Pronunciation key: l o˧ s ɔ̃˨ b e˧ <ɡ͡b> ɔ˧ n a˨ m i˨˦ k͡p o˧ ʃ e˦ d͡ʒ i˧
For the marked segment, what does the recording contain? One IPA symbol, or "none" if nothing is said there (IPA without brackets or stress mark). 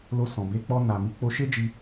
k͡p